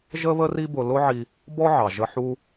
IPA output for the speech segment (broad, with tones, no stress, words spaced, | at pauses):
ʒə˥βə˥ri˥bʊ˧ lʊ˥ʕi˧ | bɔ˥ʕɑ˩ʒə˧ ħu˧